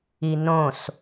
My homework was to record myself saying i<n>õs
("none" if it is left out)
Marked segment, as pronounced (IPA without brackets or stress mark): n